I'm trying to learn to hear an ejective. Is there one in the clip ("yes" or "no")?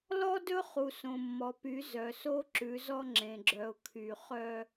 no